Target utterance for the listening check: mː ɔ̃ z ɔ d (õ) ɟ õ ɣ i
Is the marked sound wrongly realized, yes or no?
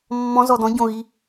yes